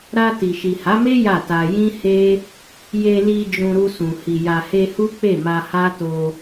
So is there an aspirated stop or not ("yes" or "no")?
no